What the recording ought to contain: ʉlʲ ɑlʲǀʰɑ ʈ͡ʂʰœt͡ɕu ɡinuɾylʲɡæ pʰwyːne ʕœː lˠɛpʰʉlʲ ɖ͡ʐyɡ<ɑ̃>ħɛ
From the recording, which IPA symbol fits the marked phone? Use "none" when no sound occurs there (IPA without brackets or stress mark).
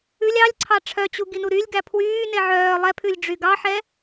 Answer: ɑ